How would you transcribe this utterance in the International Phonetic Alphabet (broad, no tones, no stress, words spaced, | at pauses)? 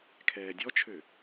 kʰɛːdʲɔt͡ʃʰø